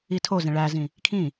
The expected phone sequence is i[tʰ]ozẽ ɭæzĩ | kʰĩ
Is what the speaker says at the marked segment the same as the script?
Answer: yes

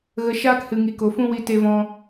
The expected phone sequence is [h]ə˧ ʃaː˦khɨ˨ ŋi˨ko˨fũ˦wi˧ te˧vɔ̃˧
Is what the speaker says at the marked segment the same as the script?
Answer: no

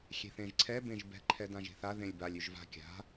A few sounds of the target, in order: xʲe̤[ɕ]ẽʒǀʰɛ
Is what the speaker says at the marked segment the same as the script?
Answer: no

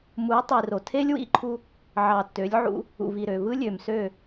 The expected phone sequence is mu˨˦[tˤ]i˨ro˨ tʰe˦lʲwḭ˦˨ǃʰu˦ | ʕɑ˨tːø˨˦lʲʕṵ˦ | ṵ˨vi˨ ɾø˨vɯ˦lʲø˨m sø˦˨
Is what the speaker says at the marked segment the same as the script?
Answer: yes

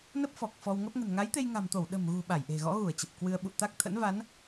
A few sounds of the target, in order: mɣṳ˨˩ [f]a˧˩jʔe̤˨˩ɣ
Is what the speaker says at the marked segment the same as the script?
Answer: no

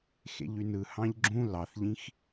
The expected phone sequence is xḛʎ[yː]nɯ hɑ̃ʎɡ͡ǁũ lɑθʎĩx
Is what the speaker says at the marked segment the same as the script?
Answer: no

